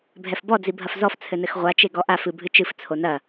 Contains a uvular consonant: yes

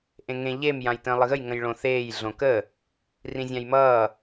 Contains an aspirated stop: no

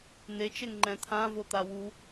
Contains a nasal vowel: yes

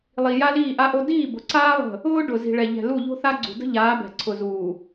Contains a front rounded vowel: no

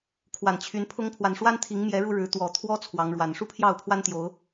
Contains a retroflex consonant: yes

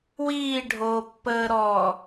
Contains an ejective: no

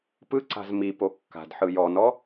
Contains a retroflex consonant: no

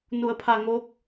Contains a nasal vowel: no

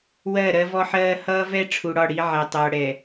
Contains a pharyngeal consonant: yes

